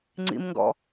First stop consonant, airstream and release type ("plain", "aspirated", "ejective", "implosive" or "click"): click